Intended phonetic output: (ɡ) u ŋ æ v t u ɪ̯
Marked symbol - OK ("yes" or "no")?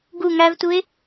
yes